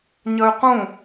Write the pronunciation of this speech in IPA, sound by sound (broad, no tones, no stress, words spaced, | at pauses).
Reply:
ɲɐy̯qũ